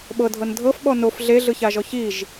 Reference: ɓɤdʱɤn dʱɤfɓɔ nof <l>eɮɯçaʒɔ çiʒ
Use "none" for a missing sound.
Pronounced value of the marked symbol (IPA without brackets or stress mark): ɮ